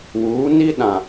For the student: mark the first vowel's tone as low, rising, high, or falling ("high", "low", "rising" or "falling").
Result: rising